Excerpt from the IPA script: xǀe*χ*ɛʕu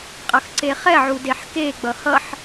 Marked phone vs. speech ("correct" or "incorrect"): correct